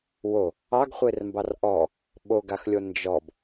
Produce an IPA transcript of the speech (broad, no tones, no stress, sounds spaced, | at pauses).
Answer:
w o | ɑ ɡ χʷ e r m b ɑ r ʔ ɔ | ɓ o ɡ a x lʲ o n d͡ʒ ɔ b